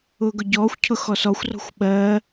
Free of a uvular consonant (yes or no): yes